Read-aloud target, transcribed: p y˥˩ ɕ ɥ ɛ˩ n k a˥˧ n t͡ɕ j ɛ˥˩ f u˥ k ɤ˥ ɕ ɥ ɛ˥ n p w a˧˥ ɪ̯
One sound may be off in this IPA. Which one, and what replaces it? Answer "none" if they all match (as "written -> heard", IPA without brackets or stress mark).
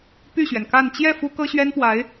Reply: none